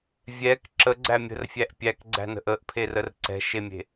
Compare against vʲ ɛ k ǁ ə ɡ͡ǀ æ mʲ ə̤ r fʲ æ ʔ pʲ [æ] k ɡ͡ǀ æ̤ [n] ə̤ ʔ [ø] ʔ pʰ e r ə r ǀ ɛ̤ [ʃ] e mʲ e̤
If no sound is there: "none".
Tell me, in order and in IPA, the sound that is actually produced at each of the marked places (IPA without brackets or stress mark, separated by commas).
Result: æ, n, ə, ʃ